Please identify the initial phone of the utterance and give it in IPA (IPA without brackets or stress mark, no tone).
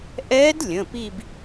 ʔ